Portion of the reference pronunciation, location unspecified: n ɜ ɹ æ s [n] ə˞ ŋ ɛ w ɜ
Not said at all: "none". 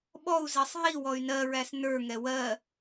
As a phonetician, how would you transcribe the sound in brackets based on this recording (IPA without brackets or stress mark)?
n